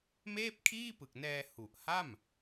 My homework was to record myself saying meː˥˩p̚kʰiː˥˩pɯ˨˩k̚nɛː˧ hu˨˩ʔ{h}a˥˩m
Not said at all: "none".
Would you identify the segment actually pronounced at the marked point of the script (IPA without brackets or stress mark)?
h